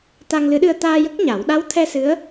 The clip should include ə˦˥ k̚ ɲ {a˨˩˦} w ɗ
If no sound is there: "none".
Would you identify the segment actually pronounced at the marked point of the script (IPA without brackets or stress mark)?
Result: a˨˩˦